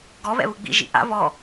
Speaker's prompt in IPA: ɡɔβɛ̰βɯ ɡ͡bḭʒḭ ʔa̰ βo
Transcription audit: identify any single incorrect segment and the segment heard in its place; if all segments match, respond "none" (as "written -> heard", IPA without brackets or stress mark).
o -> ɔ